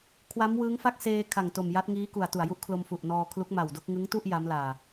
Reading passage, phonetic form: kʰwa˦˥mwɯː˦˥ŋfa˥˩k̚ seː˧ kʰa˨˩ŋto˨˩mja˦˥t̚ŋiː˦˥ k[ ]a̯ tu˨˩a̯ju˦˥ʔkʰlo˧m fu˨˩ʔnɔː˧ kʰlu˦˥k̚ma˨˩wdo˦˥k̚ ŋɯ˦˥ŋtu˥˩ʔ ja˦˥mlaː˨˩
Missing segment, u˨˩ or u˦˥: u˨˩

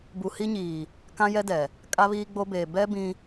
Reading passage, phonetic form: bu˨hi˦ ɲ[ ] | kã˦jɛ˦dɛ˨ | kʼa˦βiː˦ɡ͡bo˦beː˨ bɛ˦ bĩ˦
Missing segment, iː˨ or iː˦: iː˨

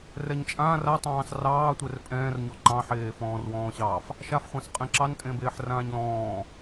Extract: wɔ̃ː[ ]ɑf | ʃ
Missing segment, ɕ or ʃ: ɕ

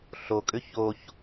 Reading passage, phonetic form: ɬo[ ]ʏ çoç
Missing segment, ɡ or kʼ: kʼ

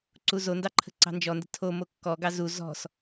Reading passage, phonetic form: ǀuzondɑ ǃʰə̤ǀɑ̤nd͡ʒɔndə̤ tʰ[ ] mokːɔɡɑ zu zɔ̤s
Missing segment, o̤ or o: o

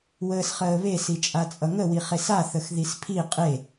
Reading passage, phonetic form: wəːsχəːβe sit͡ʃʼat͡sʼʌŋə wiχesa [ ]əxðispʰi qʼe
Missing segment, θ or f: θ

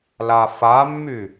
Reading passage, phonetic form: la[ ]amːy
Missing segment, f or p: f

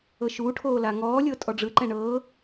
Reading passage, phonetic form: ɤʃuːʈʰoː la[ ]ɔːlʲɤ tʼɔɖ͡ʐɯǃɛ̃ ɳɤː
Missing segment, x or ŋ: ŋ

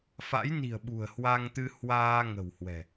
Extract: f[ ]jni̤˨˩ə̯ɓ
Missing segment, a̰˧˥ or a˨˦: a̰˧˥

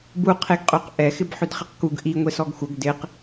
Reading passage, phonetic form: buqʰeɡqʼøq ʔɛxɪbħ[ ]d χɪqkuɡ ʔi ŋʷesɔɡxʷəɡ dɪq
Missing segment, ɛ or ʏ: ʏ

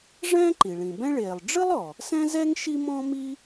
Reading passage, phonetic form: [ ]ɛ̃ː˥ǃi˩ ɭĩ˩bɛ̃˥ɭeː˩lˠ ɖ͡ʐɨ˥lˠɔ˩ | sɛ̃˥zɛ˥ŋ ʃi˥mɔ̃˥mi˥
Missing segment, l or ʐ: ʐ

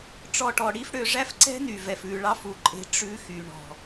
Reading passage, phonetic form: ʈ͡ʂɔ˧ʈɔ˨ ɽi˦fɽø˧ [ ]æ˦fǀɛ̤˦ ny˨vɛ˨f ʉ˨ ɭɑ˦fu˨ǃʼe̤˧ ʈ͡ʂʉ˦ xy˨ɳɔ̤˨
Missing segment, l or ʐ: ʐ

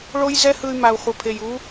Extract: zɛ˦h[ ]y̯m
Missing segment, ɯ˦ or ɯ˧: ɯ˧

